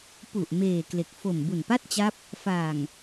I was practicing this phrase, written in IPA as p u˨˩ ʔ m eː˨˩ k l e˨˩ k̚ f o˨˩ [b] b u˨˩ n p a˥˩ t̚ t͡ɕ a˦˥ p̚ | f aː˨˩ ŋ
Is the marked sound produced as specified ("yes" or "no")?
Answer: no